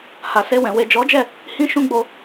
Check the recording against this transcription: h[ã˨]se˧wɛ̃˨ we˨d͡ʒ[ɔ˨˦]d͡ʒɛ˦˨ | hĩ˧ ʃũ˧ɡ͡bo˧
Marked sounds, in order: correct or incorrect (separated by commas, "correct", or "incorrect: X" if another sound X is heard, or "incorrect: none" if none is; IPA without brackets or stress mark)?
incorrect: a˨, correct